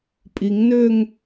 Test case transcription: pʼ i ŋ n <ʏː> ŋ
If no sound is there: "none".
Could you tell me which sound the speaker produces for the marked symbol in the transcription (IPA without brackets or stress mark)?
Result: ʏː